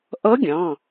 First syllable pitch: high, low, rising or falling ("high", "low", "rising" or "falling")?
rising